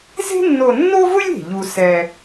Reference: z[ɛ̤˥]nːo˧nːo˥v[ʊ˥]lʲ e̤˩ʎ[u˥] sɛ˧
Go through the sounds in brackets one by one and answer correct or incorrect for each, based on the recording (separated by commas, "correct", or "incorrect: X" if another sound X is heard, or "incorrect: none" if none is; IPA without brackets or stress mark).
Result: incorrect: e̤˥, correct, incorrect: u˧